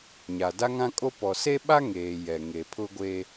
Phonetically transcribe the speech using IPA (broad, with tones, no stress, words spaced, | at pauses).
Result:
ɲa˨da˦ŋã˦kʼo˦ pɔ˨se˦ɓa˦ ŋeː˨ jɛ˨ŋe˨ pʰʊ˦ ɡʷe˦